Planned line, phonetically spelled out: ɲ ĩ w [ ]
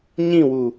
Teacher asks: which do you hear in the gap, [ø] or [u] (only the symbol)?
u